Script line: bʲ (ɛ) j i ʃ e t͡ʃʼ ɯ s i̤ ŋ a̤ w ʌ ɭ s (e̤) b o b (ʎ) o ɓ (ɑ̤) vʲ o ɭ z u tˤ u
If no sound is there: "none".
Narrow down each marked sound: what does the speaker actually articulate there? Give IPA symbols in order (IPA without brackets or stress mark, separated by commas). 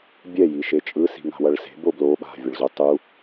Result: ɛ, e̤, l, a̤